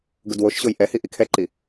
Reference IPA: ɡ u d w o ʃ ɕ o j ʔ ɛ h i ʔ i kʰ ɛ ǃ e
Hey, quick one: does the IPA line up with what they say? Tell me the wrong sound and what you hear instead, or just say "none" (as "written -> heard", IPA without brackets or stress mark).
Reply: e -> i